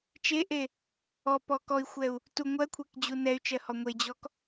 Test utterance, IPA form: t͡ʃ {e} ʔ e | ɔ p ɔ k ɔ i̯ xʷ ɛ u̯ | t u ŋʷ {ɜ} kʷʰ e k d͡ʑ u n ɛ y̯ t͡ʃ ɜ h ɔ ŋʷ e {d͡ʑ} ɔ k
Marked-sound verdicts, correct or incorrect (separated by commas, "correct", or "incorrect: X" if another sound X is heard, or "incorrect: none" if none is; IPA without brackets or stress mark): correct, correct, correct